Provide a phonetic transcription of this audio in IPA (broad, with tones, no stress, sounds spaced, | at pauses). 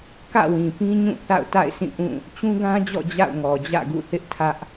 k ä̰˦˨ w ĩ˨ p ĩ˦ ɲ ũ˦˨ θ a̰˦˨ ʊ̯ t a̰˦˨ ɪ̯ sʰ ĩ˦˨ ʔ ũ˦˨ | t͡ɕ ũ˦ ɡ ã˦ d͡ʑ ɔ̰˦˨ d͡ʑ a̰˦˨ ʊ̯ ŋ ɔ˨ d͡ʑ ä̰˦˨ ɡ ṵ˦˨ θ ɪ˦ ʔ tʰ ä˦ ʔ